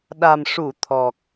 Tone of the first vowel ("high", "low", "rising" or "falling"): low